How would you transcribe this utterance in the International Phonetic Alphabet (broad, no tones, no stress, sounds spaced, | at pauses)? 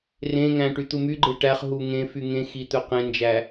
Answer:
r ẽ ŋ æ̃ ʈ y t̪ u m y ɡ͡ǃ e ʈ æ χ ɦ u ŋ ẽ f y ŋ ẽ x i t̪ ɵ q ẽ n d͡ʒ æ